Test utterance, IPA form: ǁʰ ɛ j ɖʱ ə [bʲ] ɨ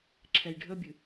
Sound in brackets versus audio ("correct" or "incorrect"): correct